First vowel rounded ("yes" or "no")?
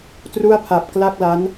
yes